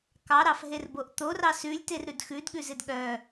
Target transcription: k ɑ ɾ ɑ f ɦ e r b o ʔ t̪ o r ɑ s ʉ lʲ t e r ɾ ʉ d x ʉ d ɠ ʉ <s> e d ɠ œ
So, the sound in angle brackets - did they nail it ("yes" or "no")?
no